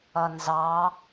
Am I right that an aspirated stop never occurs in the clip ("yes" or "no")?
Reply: yes